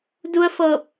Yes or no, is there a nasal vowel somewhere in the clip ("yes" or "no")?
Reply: no